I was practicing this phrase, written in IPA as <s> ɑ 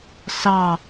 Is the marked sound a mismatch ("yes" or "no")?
no